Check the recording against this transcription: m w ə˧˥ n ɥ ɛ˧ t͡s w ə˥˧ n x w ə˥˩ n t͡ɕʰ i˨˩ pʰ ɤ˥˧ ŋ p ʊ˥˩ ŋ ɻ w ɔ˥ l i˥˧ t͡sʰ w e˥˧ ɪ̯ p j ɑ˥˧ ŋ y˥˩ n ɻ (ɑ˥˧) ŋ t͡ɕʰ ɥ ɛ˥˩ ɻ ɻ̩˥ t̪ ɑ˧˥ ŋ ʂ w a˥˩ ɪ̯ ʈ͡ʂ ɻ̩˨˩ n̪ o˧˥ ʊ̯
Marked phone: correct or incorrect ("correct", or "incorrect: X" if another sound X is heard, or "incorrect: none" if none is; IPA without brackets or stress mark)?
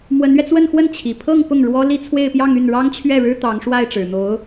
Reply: incorrect: ɑ˥